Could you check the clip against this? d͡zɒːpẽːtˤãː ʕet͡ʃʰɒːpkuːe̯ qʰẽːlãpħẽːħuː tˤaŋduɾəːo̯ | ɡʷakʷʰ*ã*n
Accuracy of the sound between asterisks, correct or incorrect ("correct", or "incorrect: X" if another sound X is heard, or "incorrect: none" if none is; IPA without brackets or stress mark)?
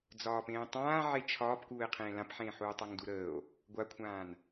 incorrect: ãː